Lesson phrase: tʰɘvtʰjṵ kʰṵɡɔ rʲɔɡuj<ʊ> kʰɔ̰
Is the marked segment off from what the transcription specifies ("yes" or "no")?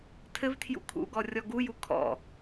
yes